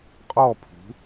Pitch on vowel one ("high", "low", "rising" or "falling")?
falling